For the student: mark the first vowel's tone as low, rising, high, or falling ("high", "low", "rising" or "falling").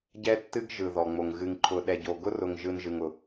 high